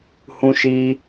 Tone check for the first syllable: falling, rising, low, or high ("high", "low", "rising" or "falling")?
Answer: high